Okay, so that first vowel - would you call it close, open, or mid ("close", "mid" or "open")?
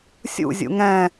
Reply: close